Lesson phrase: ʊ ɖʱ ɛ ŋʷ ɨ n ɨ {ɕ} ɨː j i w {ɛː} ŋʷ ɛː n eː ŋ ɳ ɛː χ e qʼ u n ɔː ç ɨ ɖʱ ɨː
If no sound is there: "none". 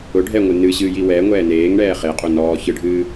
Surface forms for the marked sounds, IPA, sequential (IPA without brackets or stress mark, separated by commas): ɕ, ɛː